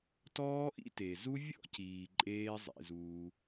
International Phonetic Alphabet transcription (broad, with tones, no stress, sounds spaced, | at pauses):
t ɔː˦ ʔ ḭ˦ t e˨ z u˦ vʲ ɔ̰˦ c iː˨ ǃʼ eː˦ zˤ ḛ˧ z uː˧